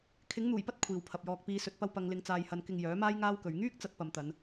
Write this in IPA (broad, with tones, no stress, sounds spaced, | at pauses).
kʰ ɪ˨˥ ŋ n̪ uː˨˩ j p ɐ˥ t̚ kʷʰ iː˨ w pʰ ɐ˨ p̚ j ɔː˧ k̚ p iː˨˧ s ɵ˨ t̚ p ɐ˧ w p ɐ˨˧ ŋ l ɪ˨˧ ŋ t͡s aː˨ j h ɐ˨ n k ɪ˧ ŋ j œː˨˥ m aː˥ j ŋ aː˥ w k ɵ˨˧ ɥ ŋ yː˥ k̚ t͡s ɐ˨˥ t̚ p ɐ˨ m t̪ ɐ˨˧ n